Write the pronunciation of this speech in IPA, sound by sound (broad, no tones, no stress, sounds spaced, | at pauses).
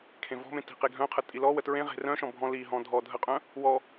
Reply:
kʰ ẽ v ɔ̤ m ẽ t i̤ q e ɡʱ œ̃ qʰ ə tʼ i l ɔ w ə t ɹ ẽ ʁ e̤ r œ̃ ʃ ɔ̃ bʱ ɔ̃ l i ɦ ɔ̃ dʱ ɔ dʱ ə qʼ œ̃ | w ɔ